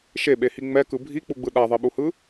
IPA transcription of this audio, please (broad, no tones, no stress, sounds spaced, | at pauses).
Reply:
ʃ e ɓ e h i ŋ͡m ɛ k ɯ bʱ i k͡p u ɡ͡b ɯ ɗ a ðˤ e ɓ u h ɯ